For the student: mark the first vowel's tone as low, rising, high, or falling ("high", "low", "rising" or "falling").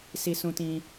high